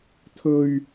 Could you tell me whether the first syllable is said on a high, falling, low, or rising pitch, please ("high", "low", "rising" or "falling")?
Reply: low